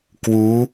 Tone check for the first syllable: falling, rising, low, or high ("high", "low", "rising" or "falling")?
rising